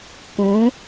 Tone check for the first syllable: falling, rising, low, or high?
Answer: rising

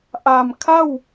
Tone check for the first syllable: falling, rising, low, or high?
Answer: low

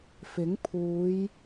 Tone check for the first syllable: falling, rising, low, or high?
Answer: rising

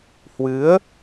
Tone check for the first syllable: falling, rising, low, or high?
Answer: rising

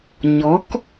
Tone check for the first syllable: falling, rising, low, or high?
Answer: rising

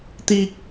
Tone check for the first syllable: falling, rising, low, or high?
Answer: high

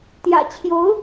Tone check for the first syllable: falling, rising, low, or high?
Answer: low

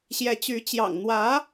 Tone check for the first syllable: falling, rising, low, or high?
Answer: rising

